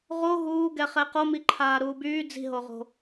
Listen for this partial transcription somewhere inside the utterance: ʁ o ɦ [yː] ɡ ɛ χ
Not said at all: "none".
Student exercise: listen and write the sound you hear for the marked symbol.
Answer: uː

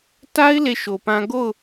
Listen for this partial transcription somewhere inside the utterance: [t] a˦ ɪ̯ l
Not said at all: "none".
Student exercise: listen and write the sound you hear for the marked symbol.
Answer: t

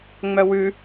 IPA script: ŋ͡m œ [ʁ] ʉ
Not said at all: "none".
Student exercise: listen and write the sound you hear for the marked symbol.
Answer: w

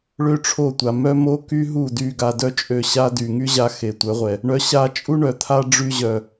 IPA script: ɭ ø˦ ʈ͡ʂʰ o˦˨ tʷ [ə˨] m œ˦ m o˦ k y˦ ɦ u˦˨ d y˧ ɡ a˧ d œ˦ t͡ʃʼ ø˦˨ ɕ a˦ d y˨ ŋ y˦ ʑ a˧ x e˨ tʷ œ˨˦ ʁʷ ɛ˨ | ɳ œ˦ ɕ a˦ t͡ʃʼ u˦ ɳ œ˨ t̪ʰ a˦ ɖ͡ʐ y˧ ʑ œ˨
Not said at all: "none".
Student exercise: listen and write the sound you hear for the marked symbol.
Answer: a˨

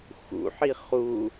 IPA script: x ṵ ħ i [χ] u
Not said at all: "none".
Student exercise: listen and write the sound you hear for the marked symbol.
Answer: χ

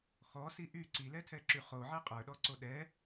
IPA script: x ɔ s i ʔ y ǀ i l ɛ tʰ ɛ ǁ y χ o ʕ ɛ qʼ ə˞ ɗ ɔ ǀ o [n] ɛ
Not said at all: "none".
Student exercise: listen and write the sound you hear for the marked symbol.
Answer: ɗ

